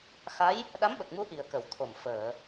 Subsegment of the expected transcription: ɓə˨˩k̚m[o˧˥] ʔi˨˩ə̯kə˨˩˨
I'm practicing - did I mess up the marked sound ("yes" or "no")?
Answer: yes